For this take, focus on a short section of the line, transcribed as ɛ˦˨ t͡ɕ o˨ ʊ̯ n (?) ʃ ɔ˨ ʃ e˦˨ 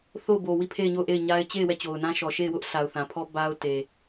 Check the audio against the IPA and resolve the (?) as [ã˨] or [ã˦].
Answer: ã˦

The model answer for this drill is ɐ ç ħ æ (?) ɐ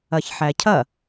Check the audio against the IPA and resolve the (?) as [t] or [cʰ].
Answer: cʰ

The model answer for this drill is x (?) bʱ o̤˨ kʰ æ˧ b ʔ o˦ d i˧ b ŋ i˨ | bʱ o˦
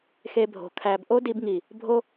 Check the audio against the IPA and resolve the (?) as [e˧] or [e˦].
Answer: e˧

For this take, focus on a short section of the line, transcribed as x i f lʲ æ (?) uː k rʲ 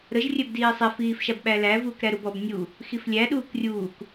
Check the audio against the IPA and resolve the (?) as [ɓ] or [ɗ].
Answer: ɗ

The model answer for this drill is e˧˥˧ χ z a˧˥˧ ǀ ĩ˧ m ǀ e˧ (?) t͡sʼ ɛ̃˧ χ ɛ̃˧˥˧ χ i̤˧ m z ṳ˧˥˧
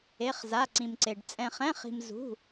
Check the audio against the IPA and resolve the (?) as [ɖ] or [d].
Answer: ɖ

